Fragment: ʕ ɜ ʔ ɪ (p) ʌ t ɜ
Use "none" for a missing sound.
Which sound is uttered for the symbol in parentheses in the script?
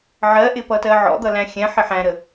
p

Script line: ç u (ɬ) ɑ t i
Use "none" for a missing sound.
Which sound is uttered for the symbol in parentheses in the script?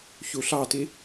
ɬ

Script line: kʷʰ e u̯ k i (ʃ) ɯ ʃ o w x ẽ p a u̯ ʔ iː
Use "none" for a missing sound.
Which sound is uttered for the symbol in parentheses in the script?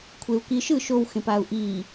ʃ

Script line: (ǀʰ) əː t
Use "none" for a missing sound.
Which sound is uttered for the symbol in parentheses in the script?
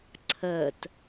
ǀʰ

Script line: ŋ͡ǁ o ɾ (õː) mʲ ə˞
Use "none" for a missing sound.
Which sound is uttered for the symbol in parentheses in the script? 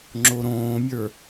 õː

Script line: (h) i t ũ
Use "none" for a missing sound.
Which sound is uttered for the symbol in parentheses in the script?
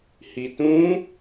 h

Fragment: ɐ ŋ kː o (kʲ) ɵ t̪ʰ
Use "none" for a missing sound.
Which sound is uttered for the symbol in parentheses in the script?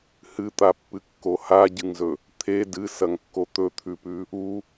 t̪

